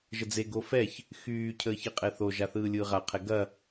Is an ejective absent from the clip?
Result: no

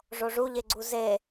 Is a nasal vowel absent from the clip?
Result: yes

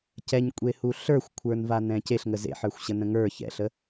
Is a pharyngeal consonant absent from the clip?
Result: no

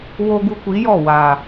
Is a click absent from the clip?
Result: yes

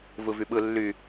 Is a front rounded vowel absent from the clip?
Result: no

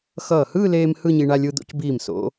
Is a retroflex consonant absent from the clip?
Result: no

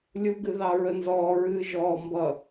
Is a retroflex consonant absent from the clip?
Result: yes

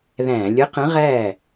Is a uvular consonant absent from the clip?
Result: no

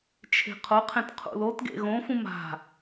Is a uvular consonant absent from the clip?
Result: no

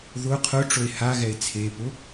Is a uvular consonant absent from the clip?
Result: no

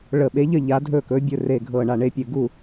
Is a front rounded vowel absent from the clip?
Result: yes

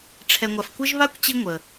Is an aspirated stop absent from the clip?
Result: no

